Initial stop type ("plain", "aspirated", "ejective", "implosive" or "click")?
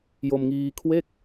aspirated